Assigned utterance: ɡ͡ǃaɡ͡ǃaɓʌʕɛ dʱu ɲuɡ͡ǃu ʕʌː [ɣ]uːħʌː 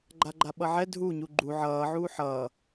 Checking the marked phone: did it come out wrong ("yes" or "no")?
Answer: yes